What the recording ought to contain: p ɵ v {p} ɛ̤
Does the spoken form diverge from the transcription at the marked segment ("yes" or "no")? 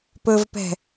no